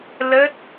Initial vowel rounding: unrounded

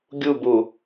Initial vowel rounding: rounded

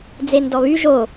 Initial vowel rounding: unrounded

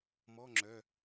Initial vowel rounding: rounded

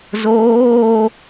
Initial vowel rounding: rounded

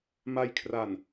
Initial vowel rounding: unrounded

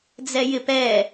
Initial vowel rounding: unrounded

